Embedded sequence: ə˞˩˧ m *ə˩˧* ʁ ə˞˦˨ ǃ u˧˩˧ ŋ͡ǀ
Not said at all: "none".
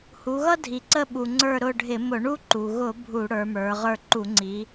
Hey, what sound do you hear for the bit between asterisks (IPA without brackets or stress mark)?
ə˞˩˧